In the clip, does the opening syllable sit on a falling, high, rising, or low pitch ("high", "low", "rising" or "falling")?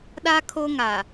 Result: high